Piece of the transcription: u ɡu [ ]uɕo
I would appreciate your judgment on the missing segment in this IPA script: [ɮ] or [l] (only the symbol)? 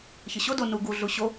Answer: ɮ